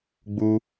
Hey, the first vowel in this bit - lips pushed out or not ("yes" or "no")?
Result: yes